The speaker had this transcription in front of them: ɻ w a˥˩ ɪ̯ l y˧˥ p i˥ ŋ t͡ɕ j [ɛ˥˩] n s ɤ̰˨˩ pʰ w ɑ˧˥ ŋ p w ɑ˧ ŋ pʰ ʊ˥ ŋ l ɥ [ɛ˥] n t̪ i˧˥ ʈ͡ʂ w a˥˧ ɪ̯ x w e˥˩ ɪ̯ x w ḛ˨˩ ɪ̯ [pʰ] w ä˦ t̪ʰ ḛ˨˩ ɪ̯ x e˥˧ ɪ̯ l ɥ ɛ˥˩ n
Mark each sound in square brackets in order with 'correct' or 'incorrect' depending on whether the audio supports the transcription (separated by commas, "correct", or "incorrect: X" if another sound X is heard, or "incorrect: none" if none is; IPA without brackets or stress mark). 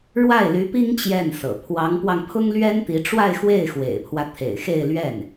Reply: correct, correct, correct